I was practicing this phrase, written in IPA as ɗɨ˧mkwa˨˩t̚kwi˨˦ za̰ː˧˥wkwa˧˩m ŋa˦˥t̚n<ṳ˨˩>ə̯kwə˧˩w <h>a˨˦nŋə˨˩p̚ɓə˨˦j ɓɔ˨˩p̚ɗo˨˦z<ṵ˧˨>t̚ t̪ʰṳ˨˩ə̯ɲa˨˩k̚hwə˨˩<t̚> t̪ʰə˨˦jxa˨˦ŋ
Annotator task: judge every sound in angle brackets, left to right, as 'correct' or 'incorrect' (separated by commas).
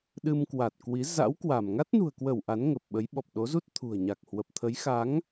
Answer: correct, incorrect, incorrect, incorrect